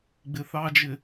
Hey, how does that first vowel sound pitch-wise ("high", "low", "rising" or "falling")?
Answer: low